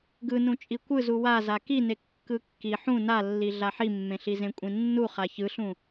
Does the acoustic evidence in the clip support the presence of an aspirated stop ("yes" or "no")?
no